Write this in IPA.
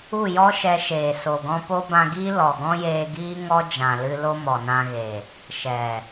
u˦˨ j ɔ˦ ʃ ɛ˧ ʃ eː˨ s o˨ ɡ ɔ̃˧ p o˦ b ã˧ ɡ iː˦ l ɔ˨ ɡ ɔ̃˦ j eː˧ ɡ iː˦ ŋ ɔ˦ d͡ʒ ã˨ l ɨ˧ l o˦ m ɔ˨ n ã˧ ɣ e˨ | ʃ ɛ˨

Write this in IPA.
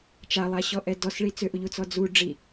t͡ʃ a lˠ a ɕ ɔ ʔ ɛ d ɔ s ɭ i t͡s ʏ ʔ u ʎ u t͡s ɔ d͡z u ɖ͡ʐ i

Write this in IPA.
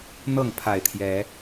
n̪ ɤ˥˨ ŋ pʰ a˨˩ ɪ̯ t̪ʰ j ɛ˨˦

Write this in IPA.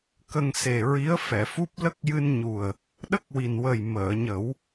k ə˧ ŋ s e˨˩ ɹ i˧˥ ə̯ f ɛ˨˩˨ f u˦˥ p̚ l ə˦˥ k̚ j ɨ˧ n ɲ u˨˩ ə̯ | ɗ ə˦˥ k̚ w i˨˩ n w ə˨˩ j m əː˨˩˨ ɲ ə˨˩˦ w

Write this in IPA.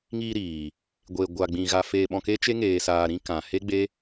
ŋ iː˧ ɾ iː˨ | ɡʷ e˨ ɡʷ a˨ ɡ͡b ĩ˨ ɣ a˧ f eː˧ ɓ ɔ̃˧ k e˦ t͡ʃ e˦ ŋ eː˧ s aː˧ ɾ ĩ˦ k ã˨ h e˦ ɡ͡b e˦

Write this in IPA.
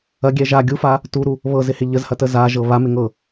ɐ ɡʲ ɛ ʒ a ɡʲ u f a | t u ɾ u | β ɤ z ɪ h ɪ ʎ ə z h ɐ t ə z a ʒ ɤ β a m ɪ ŋ ɤ

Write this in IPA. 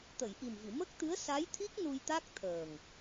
t̪ ə˨˩˨ j ʔ i˨˩ m v i˨˩˨ m ə˦˥ k̚ t̪ ɨ˧˥ ə̯ s a˧˥ j t̪ʰ i˦˥ k̚ n u˧ j t̪ a˦˥ k̚ t̪ʰ əː˨˩ ŋ

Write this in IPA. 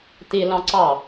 t i l ɑ̃ ǀ ɑ

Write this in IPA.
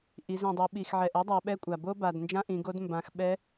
ʔ i˩˧ z ĩ˩ dˤ ʉ˩˧ ɓ i˩ x ʕ ɛ˩ ʔ ɛ˥ dˤ a˩˧ ɓ ɛ˧˥ kʷʼ a˩ b o˥ b a˩ d n d͡ʒ ã˥ ʔ ĩ˩˧ ɡ o˧˥ d m b ã˩˧ x ɓ ɛ˧˥

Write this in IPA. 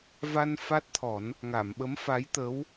v a˧ n f a˦˥ t̚ t̪ʰ ɔ˨˩˦ n | ŋ a˨˩˨ m ɓ ə˧˥ m f a˧˥ j t̪ ə˧˥ w

